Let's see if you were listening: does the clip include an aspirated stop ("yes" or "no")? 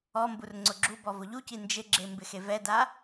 no